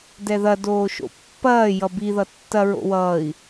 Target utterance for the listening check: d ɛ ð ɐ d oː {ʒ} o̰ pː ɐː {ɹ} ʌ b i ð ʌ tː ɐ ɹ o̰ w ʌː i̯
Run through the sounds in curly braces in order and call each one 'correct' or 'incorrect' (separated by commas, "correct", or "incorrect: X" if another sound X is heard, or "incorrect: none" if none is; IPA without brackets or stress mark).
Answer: incorrect: ʃ, incorrect: j